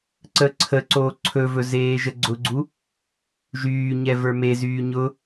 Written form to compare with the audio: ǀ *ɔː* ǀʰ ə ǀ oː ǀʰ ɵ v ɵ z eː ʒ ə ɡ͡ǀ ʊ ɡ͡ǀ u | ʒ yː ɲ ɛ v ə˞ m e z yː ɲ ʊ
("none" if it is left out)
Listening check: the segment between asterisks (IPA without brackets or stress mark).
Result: əː